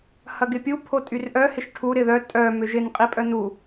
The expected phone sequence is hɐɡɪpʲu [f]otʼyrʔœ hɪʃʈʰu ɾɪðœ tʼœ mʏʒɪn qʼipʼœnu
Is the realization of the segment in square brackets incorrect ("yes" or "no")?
yes